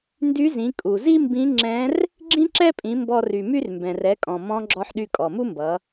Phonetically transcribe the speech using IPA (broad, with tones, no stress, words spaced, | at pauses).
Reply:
ndy˧˥zĩ˩˧ kʼu˩zi˥ mbĩ˧˥ ŋ͡ǁɛ̃˧˥r | ɡ͡ǁĩ˥ǁɛ˥pʼĩ˩˧ mbɔ˧ry˩my˥r mbɛ̃˩rɛ˩˧kʼɔ̃˩ mɔ̃˧˥ ɡ͡ǁɔ˧ħɗy˧ kʼɔ˩mu˥mbʌ˩˧